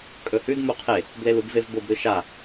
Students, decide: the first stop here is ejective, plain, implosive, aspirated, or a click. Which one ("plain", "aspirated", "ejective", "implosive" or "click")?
ejective